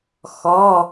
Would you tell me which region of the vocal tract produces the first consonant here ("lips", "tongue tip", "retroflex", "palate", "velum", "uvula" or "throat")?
velum